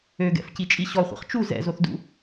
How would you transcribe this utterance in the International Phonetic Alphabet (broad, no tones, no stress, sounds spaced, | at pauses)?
ø ɡ ɛ̰ f c i t͡ʃʼ i ɕ ɔ χʷ ɛ̰ χ t͡ʃ u z ɛ̰ z o θ d ṵ